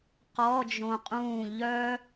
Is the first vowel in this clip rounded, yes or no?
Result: yes